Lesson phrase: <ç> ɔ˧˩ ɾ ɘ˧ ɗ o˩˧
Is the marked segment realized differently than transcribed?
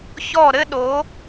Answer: no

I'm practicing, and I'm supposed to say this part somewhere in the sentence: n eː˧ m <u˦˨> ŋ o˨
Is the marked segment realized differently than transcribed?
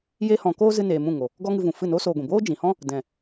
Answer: yes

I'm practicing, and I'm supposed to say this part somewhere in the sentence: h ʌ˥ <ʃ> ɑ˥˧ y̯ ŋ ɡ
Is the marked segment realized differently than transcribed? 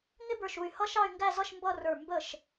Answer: no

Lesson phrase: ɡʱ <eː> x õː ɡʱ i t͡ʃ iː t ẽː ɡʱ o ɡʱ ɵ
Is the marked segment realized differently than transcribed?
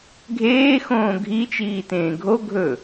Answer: no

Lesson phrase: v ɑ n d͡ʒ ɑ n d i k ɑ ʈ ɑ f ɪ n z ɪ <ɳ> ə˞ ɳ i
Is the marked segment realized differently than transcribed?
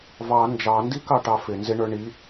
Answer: no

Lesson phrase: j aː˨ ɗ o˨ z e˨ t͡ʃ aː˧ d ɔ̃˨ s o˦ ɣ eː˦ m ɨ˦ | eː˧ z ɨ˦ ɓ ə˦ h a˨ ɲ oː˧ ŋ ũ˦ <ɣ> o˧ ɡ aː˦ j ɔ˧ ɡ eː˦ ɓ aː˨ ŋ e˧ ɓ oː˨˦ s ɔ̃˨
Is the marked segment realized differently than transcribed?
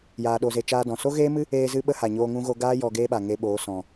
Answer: no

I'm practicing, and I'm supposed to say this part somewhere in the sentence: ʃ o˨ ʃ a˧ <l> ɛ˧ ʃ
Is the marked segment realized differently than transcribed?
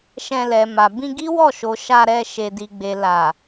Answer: yes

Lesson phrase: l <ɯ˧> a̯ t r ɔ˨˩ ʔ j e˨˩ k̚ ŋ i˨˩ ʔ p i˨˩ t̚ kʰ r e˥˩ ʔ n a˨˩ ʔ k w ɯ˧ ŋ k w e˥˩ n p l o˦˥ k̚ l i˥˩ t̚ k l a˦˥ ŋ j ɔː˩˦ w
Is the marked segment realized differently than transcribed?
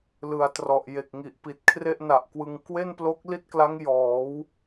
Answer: yes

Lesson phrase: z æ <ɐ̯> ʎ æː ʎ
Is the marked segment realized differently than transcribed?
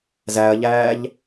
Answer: no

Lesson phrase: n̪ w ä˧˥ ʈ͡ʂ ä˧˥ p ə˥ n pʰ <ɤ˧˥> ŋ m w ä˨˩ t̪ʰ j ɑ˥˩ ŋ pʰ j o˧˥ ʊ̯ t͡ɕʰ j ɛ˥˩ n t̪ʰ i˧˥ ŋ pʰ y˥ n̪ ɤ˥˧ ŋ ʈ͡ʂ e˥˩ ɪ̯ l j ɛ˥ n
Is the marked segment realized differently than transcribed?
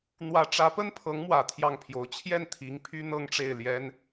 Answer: no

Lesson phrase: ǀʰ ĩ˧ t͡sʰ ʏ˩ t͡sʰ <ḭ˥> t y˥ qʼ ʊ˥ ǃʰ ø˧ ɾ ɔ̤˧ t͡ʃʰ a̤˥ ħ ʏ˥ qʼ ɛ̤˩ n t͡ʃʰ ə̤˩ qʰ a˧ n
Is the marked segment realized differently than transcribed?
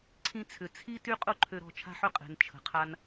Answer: yes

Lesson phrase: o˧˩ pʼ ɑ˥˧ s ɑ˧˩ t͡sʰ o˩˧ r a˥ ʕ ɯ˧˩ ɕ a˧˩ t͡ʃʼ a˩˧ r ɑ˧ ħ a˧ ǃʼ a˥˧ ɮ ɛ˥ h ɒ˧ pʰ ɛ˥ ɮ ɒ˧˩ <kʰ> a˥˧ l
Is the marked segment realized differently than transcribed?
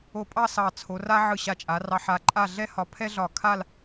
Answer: no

